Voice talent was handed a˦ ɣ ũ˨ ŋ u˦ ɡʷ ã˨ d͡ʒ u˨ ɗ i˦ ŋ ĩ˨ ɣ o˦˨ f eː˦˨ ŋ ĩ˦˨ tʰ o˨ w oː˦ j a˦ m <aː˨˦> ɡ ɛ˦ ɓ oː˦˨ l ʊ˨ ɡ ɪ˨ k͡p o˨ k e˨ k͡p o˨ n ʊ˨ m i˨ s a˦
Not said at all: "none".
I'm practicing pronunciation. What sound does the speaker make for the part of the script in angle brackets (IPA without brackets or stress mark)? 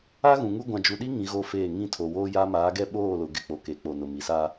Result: aː˨˦